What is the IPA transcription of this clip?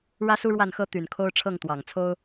ɻ ä˥ s u˥ ɻ w a˥˩ n x ɤ˥ t̪ y˨˩ n kʰ o˥ ʊ̯ ʈ͡ʂʰ ɤ˥˩ ŋ t̪ w ɑ˨˩ ŋ t͡sʰ o˥ ʊ̯

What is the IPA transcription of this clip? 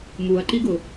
m u ɐ̯ ǃ i ɡ ʊ

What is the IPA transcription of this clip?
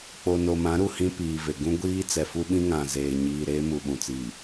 k͡p o˨ n o˨ m ã˨˦ ɾ u˨ h ĩ˦ p iː˨ v e˨ ɡ ũ˦ ɡʷ iː˦ t͡s ɛ˨ f u˦ ɓ ĩ˦ ŋ ã˨ z eː˨ ɲ iː˨ ɾ eː˦ m u˨ ɓ ũ˨ t͡s iː˨

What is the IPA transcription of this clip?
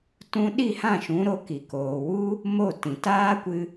t ũ˧ ɗ i˦˨ h ã˦˨ ʃ ũ˨˦ ɾ o˧ k i˨ k oː˨ w u˦ | m o˦˨ t ĩ˨ t aː˦ kʷ ɨ˧

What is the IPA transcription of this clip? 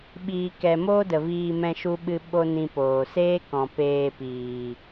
ɓ iː˧ k ɛ˧ m oː˦ d ə˨ v iː˧ m ɛ̃˦ ʃ u˦ ɓ ɨ˧ ɓ o˦ n ĩ˧ p oː˨ s eː˦ k ɔ̃˨ p eː˧ p iː˨

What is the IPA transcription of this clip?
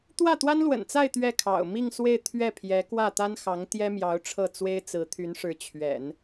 t̪ w ä˥˩ t̪ w a˥ n l w ə̰˨˩ n t͡s a˥˧ ɪ̯ t̪ ɥ ɛ˥˩ kʰ ɑ̰˨˩ ʊ̯ m i˥˧ ŋ s w e˥˧ ɪ̯ t̪ʰ ɥ ɛ˥˩ pʰ j ɛ˧˥ k w ä˥˩ t̪ a˥ n x ɑ˧˥ ŋ t̪ j ɛ˥ m j ɑ˧˥ ʊ̯ ʈ͡ʂʰ ɤ˥˩ t͡s w e˥ ɪ̯ t͡s ɹ̩˧˥ t̪ʰ y˧˥ n ʂ ɻ̩˧˥ t͡ɕʰ ɥ ɛ̰˨˩˦ n

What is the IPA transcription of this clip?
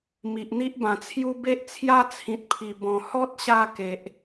m i˨ ʔ n̪ i˦ ʔ b ã˨˩ t͡sʰ j u˦ b e˦ ʔ t͡sʰ j a˦ t͡sʰ ĩ˨ t̚ pʰ i˨˩ b ɔ̃˨˩ h ɔ˦ t̚ ɕ a˧ k e˨ ʔ

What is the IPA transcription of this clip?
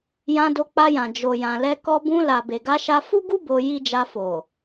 j ã˧ d o˧ k͡p a˧ j ã˨ d͡ʒ o˨ j ã˨ l ɛ˧ k ɔ˧ b ũ˧ l a˨ b e˨ ɡ a˧ ʃ a˧ f u˦ ɡ u˦ b o˧ j i˦ d͡ʒ a˧ f o˨

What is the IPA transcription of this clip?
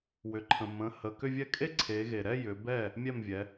w ʏ˩ ǃʰ ə̃˩ m ə̃˩˧˩ h ə˩˧˩ k ʏ˥˧ vʲ ɛ˥˧ kʼ e˥˧ ǀʰ e˩˧ ɣ e˩ ɾ ɛ˥˧ j ʏ˩˧ b ɛ˥˩ | mʲ ɛ˥˩ m vʲ ɛ˩˧

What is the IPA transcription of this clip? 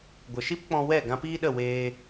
ɡʷ ə˨ ʃ i˦ p k͡p ɔ̃˧ w ɛ˦˨ ɡ ã˧ p iː˦ ɗ ə˦˨ w eː˧

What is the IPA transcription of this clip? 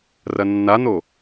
r ɐ nː a n̪ o

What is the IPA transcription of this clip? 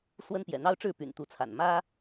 s w ə˦ n p j ɛ̰˨˩ n̪ ɑ˦ ʊ̯ ʈ͡ʂ ɻ̩˥˨ p y̰˨˩ n t̪ u˨˦ t͡sʰ a̰˨˩ n m ä˦

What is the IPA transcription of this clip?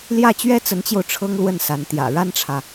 l j ä˥˩ t͡ɕ ɥ ɛ˥ t͡s ə˧˥ n t͡ɕ j o˧ ʊ̯ ʈ͡ʂʰ ɤ˥ ŋ l w ə˥˩ n s a˧˥ n t̪ j ä̰˨˩ ɻ a˥ n ʈ͡ʂʰ ä˨

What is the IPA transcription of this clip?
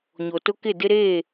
ɲ o˨ t ʊ˦ k ɪ˦˨ d ɪ˦ ɾ eː˦˨

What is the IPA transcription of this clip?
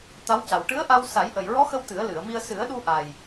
t̪ a˧˥ w c a˨˩ w ʈ ɨ˧˥ ə̯ ʔ a˧ w s a˨˩˦ j ʔ ə˨˩ j ɹ ɔ˧˥ x ə˧ w t̪ ɨ˨˩˦ ə̯ l ɨ˨˩˨ ə̯ m i˧ ə̯ s ɨ˨˩˦ ə̯ ɗ u˧ ʔ a˨˩ j

